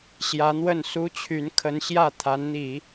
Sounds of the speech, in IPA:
ɕjä˧˥n̪wə˥˩n su˥t͡ɕʰy˧˥n kʰə˧˥nɕjä˥˩ t̪ʰa˧˥nn̪i˨˩˦

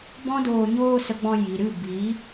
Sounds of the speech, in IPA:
bɔ̃˦doː˧ ɲoː˧ sə˧ɡ͡bɔ̃˧ ji˨ɾɨ˦˨ bi˨˦

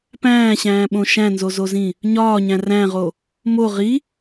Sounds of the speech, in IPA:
pæ̃ːɕæ̃ːɓõ ʃæ̃nzozozĩ | ɲɒːɲæ̃ ræ̃ʁo | mo ʁi

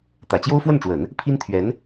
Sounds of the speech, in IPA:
t̪ä˨˩t͡ɕjo˥ʊ̯fwə˥˩nʈ͡ʂwə˨˩˦n | pʰi˥nt̪ʰɥɛ˧˥n

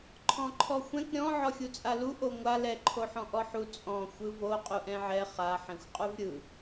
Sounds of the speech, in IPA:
ǃʰɔ̃ǃʰɔxʷɛ̃k ɾʲɔ̃ ʕɔxʲut͡sʼalu ʔoŋʷa lɛ ǃʰoħɔ̃ʔɔħu t͡sʼɔ̃ xʷɯvo qʼuʔɛ̃ʕɛ χa ħɛ̃xʷqʼuvɾʲɯ

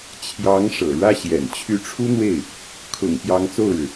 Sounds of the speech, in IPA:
t͡ɕʰjɑ˧˥ŋ ʂɤ̰˨˩ɻä˥˩ɕjɛ̰˨˩n t͡ɕʰy˧˥ʈ͡ʂʰu˥n̪we˥˩ɪ̯ | kʰʊ̰˨˩ŋ pjɑ˧˥ŋt͡so˥˩ʊ̯ɻɻ̩˩

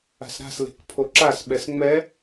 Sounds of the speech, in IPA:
a̤sɾa̤sle̤k pʰoǁasɓɛs ŋ͡mɛ

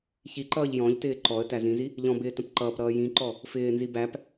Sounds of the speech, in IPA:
çiǃʌːʎ jɔ̃ʎtɪː ǃɔə̯ tæzĩzi | ʎɔ̃bɪː tə̃pǃʌːpɾʌː jĩǃɔ | fɪːnzi bæp

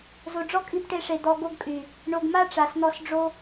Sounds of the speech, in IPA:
zo˨ɖ͡ʐɔ˦kʼi˧b ʈe˧ʂe˨ d̪ɔ˧ɡo˦ɡkʼy˨ | ɳo˨ɡma˦ ʈ͡ʂa˨sn̪ɔ˧sɖ͡ʐo˦

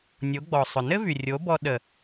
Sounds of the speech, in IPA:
nʲo˨˦ɡ͡bɔ˨sˤʊ˨ nɘ˦vy˨rʲo˨˦bɔ˧ ɗə˨

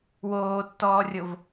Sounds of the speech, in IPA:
woːtːɔːrʲov

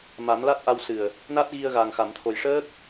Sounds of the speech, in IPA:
ma˨˩˦mla˦˥t̚ʔa˧w sɨ˨˩ə̯ | na˦˥t̚ɣi˧ə̯ɣa˨˩ŋ xa˨˩˨mt̪ʰo˨˩jʂəː˦˥k̚

